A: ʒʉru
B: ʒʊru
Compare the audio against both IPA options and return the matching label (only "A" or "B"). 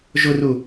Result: B